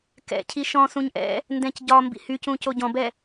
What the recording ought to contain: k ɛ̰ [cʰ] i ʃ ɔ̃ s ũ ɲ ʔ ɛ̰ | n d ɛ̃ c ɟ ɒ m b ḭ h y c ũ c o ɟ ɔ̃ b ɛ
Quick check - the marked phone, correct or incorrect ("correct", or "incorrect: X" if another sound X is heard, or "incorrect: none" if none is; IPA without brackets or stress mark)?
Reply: correct